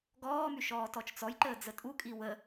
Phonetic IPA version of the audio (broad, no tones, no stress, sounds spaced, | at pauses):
ɡ ɔː m y ʃ ɔː t ɔ t͡ʃ t͡s ɔ j ǃ əː d͡z ə tʼ u kʼ i w ə